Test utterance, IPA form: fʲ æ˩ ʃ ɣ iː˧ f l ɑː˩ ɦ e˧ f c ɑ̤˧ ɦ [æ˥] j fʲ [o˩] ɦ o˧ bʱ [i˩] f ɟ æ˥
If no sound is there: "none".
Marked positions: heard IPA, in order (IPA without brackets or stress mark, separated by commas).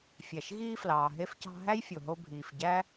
æ˥, o˩, iː˩